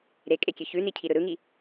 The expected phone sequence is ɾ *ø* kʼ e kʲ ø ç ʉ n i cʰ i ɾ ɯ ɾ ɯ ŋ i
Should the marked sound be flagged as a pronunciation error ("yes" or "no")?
yes